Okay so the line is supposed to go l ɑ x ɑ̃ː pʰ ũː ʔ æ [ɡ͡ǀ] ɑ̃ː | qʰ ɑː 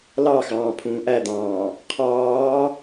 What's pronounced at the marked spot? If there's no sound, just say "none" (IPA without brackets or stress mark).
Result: d̪